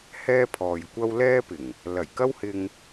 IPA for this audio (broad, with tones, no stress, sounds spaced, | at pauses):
h ɛː˥ pʰ ɔː˨ j kʷ ɐ˥ w l ɛː˥ p ɪ˨˩ ŋ | l ɐ˨˩ j k ɐ˥ w h ɪ˧ ŋ